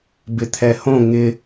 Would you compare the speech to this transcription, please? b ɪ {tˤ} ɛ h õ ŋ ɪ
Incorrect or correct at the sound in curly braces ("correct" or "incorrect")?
incorrect